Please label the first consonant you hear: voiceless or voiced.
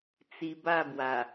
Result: voiceless